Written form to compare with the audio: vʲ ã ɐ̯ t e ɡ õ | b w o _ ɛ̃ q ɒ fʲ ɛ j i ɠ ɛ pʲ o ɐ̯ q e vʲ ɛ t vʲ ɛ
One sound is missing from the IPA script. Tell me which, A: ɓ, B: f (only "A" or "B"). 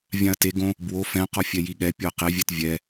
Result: B